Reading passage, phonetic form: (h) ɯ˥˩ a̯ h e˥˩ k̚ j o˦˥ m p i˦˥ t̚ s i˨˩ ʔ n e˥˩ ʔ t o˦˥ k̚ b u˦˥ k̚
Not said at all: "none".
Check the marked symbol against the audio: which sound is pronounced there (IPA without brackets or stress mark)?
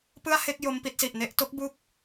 p